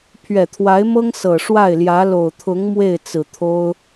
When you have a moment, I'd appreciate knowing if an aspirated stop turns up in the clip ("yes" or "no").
yes